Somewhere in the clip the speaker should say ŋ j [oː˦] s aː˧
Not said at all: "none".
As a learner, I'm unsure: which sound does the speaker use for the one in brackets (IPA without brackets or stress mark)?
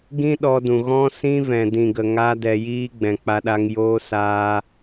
oː˧